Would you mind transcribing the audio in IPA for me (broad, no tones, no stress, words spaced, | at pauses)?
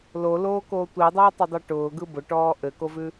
loloːkoː tʷidˤʊːtˤʊdˤɛ ʈʊːɡɯ bʊʈɔː ʔɘkovʉ